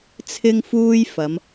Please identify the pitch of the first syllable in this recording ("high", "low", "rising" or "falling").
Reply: high